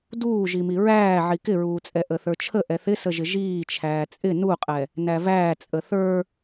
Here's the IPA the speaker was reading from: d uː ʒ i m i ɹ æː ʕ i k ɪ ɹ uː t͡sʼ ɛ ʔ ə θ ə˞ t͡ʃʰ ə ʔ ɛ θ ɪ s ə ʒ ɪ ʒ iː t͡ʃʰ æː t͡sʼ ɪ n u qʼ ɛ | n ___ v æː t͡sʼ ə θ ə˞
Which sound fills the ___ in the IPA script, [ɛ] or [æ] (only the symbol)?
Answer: æ